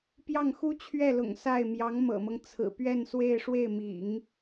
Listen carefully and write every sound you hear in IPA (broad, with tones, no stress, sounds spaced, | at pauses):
p j ɑ˥˩ ŋ x u˥ t͡ɕʰ ɥ ɛ˥˩ l ʊ̰˨˩ ŋ s a˥˩ ɪ̯ m j ɑ˧˥ ŋ m ɤ̰˨˩ m ɤ˦ ŋ t͡sʰ ɹ̩˨˩ p ɥ ɛ˥˧ n s w e˥˧ ɪ̯ ʂ w e˥˩ ɪ̯ m ḭ˨˩˦ ŋ